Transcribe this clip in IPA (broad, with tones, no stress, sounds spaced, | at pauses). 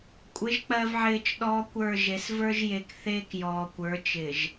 kʷʼ ɪ˨˦ ʒ k͡p ɜ˨ v ʕ ɪː˨ t͡ʃ ɗ ɔː˦ kʷ ə˞˦˨ ʒ e˨˦ s v ə˞˦ ʒ j e˨ k θ eː˦ k j ɔː˨ kʷ ə˞˨˦ t͡ʃ ɪ˨ ʒ